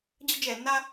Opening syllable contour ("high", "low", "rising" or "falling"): high